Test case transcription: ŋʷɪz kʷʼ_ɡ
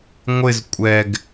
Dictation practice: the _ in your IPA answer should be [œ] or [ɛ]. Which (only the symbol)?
ɛ